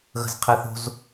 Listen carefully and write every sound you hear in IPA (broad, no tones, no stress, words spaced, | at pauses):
ɣə̤zqʰɛθo̤z